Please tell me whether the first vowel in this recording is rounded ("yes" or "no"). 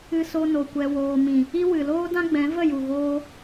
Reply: no